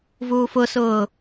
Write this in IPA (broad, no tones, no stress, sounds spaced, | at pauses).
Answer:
v uː f ʊ s ʊː